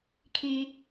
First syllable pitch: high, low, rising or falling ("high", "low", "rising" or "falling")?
low